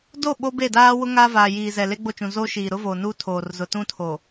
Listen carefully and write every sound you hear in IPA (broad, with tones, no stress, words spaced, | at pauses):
do˦˨ ɓo˦be˦˨daː˦ wʊ˦ŋaː˦vaː˨ jiː˨zɛ˨le˦ ɡ͡bo˦˨t͡ʃũ˨ zoː˦ʃiː˨ɾʊ˦voː˨ nuː˦tʰoː˨rzʊ˨ tũ˦ tʰo˨